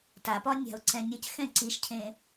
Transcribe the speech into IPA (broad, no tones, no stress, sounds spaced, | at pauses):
t a p ɒ nʲ a̤ ʊ̯ ǀ ɛ̃ nʲ ə c x ɛ̃ ǀ i ʃ cʰ ẽ